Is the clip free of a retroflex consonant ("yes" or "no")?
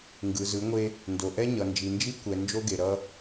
yes